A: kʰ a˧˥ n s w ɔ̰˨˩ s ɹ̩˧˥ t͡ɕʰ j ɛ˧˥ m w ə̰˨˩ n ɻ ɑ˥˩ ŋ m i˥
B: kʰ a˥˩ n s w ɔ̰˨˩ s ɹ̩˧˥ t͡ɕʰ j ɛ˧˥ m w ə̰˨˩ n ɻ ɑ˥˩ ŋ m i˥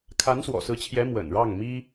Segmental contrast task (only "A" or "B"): A